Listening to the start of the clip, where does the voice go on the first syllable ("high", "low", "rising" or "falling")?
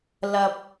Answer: low